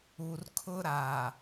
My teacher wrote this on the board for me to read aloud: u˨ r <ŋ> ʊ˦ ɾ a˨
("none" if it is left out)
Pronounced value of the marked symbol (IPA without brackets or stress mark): kʰ